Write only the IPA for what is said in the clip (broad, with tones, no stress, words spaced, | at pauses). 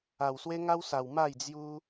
a˧wswe˦ŋa˦wsa˧w ma˥˧jd͡zju˦